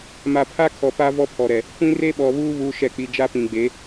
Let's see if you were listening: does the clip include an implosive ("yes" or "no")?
yes